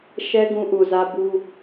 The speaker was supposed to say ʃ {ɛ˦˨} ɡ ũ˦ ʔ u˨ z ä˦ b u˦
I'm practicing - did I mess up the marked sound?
yes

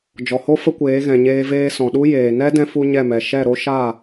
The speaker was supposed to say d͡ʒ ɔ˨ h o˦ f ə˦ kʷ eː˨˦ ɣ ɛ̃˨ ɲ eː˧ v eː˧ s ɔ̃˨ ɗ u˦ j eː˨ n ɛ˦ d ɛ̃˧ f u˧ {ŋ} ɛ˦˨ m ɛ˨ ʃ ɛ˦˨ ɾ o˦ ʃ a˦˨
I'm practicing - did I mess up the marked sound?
yes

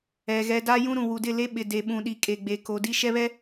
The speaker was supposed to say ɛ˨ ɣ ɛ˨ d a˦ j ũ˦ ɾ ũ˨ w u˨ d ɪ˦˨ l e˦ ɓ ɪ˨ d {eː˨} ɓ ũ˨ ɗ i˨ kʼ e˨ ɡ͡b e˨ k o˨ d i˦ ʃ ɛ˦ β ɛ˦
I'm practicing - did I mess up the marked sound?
yes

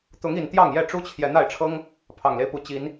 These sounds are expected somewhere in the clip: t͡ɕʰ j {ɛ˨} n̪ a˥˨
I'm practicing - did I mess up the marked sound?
no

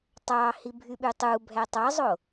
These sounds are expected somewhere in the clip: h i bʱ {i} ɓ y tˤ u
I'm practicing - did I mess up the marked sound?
yes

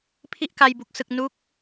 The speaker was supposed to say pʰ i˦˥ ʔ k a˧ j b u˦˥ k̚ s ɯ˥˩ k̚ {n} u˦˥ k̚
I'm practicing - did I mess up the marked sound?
no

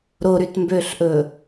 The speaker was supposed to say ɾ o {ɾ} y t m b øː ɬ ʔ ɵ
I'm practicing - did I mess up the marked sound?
no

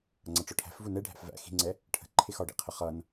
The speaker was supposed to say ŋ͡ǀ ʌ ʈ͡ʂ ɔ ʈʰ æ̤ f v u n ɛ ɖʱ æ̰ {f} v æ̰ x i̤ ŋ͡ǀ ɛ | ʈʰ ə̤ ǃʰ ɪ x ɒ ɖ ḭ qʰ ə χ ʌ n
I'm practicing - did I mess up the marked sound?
no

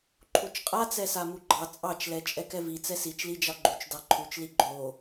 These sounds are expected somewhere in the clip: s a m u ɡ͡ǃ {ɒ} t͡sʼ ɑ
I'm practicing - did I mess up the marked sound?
yes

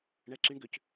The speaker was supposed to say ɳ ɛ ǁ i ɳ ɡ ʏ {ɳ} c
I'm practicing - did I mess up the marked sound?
yes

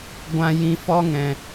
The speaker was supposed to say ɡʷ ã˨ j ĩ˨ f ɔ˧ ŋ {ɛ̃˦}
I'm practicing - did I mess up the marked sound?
yes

